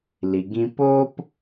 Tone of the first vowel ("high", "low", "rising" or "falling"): low